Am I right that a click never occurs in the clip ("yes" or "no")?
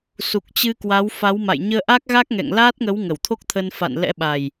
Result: yes